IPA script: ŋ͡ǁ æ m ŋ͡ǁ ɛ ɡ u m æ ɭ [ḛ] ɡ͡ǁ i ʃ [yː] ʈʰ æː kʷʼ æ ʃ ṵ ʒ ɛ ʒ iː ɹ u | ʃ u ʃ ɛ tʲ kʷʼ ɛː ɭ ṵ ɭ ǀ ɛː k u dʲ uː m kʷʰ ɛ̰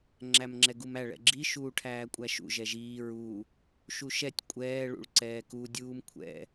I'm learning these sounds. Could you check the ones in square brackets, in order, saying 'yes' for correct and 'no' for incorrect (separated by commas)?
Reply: no, no